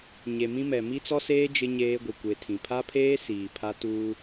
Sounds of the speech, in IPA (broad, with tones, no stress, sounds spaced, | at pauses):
ɲ e˨ m ĩ˦ m ɛ˨ m i˦ t͡s ɔ˦ s eː˦ d͡ʒ ɪ˦ ɲ eː˦ ɡʷ i˨ kʷ e˨ tʰ ĩ˨ pʰ a˦ pʰ eː˦ s iː˨ pʰ a˦ t uː˦